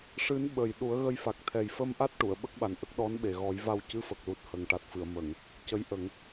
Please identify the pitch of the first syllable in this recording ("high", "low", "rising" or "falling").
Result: rising